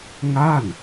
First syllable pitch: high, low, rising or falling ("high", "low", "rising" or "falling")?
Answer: falling